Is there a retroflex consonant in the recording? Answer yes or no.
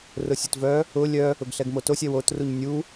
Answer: no